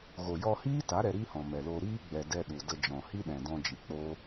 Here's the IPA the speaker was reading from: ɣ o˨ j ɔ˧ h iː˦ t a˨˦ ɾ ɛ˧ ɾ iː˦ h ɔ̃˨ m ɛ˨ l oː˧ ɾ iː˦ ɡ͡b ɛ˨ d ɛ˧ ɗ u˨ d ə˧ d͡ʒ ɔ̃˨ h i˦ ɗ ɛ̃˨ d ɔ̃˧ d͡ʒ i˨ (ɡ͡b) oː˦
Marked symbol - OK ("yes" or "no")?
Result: no